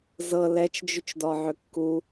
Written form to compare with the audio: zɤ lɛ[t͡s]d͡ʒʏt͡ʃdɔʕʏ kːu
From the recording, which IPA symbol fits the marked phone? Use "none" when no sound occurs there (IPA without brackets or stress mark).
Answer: t͡ʃ